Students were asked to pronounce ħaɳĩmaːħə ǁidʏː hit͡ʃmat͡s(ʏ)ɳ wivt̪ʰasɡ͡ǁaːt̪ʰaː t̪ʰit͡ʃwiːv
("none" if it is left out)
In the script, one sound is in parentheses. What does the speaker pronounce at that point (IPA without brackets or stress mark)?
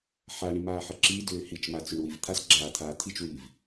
ʏ